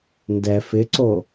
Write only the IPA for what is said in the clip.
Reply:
n d ɛ f ɪ ǀ o

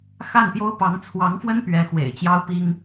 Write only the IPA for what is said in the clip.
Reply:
x a˥˩ n p j o˥ ʊ̯ p ɑ˧˥ ŋ t͡sʰ w ɑ˧˥ ŋ f w ə˥ n p ɥ ɛ˧˥ x w ḛ˨˩ ɪ̯ t͡ɕ j ɑ˥ ʊ̯ p i˥ ŋ

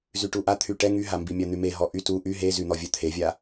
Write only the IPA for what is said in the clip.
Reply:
z y ʈ u ʔ a t̪ʰ y ʈ ɛ ŋ y ɦ a m b i mʲ a n̪ y m e ɦ ɔ ʔ y t u ʔ y ɦ e z y n̪ ɔ vʲ œ t̪ʰ e vʲ a

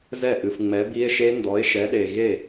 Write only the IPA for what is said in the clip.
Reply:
z ɛ˥˩ ʔ ɨ˨ f ŋ͡m ɛ˨˥ b i˦˥ e̯ ʃ e˦˥ n d ɔ˨˥ e̯ ʃ ɛ˨˥ ɗ e˨ ɣ e˥˩

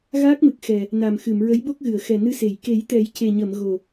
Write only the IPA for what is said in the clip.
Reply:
ɣ aː˦˥ k̚ m ɨ˨˩ k̚ x ɛ˨˩ | n a˨˩ m x ɨ˨˩˨ m ɹ ə˧˥ j ɓ o˦˥ k̚ ɣ ɨ˨˩˨ ə̯ x ɛ˨˩ n ɨ˧ s e˨˩˨ j k e˨˩˦ j t̪ ɛ˨˩˦ j c e˨˩ ɲ ə˨˩˨ m ɣ o˨˩

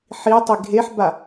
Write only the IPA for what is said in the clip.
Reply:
ħ i tˤ i ɡʱ e ħ b a

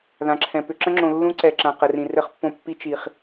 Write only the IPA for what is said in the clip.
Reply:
ð ã˨ ǁʰ ɛ̃˨ p ʏ˨ ǁ ə̃˦ ŋ͡ǁ õ˨ lː ũ˦ ǀ ɛ˨ ǁ ã˨ q ə˨ r ĩ˨ r ɘ˦ χ pː õ˦ pː i˦ t͡ʃ i˨ χ

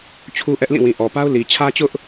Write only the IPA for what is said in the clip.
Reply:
t͡ɕʰ u˦ ʔ ɛ˦ ʔ l ĩ˦˨ w ĩ˨ ʔ ɔ˨ p a˦ ʊ̯ l i˨ t͡ɕʰ ä˦ t͡ɕ ʊ˦ ʔ

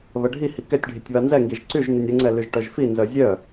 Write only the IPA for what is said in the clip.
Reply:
β ə ɖʱ i h i k ɛ tʲ ɖʱ i tʲ β a n z ɛ ŋ ɡ i ʒ ǀ y ʒ n i nʲ ə ŋ͡ǀ ɛ l y ʒ ʈ œ ʒ f i n z œ zʲ œ

